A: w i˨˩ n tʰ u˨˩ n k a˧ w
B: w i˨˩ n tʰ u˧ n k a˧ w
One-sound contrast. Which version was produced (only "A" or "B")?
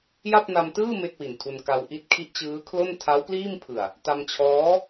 B